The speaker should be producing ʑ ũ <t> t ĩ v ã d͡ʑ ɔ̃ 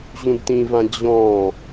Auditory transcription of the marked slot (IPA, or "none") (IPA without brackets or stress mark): d